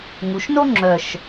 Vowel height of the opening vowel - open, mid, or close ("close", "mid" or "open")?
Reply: close